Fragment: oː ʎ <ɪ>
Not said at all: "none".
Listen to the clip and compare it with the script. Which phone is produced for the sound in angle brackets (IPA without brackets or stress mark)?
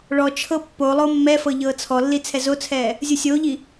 i